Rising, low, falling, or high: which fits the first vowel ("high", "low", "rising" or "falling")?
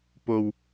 low